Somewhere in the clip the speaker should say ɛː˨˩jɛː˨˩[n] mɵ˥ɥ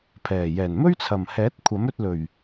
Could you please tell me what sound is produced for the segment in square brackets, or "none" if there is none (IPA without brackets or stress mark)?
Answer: n